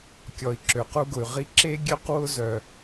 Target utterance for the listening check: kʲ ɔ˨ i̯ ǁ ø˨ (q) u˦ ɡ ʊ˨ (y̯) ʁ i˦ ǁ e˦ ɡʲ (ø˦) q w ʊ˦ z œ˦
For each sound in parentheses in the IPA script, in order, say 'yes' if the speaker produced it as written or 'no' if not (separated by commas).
yes, yes, yes